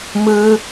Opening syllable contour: high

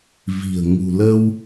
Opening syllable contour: low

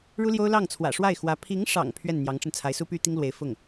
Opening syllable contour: high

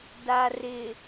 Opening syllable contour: low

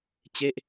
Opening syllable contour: falling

